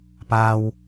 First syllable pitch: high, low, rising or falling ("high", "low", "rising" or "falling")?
low